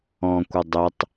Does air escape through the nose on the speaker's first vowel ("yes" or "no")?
yes